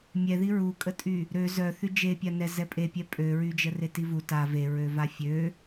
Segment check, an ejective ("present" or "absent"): present